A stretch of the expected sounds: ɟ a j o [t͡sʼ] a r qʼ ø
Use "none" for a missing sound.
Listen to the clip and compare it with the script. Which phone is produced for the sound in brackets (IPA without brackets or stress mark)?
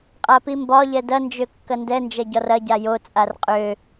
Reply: t͡sʼ